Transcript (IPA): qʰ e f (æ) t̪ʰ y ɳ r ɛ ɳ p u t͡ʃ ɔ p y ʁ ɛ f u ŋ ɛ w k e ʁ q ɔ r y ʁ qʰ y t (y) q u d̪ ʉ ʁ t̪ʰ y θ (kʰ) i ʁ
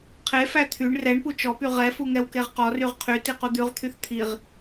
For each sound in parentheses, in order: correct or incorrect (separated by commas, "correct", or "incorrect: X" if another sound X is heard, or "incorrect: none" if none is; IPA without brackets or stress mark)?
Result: correct, incorrect: i, incorrect: t̪ʰ